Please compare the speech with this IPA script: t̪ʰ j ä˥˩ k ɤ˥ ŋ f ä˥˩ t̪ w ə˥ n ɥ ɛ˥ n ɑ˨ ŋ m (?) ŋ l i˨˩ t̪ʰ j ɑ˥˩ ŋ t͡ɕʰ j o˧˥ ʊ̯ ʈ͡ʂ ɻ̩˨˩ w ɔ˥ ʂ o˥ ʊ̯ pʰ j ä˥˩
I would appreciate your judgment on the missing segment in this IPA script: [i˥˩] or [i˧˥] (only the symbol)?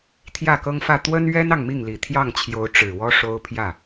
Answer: i˥˩